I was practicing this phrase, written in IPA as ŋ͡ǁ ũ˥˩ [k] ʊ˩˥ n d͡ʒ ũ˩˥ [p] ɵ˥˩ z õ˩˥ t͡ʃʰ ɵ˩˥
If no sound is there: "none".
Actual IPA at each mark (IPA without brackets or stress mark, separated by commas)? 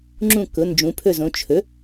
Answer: k, pʰ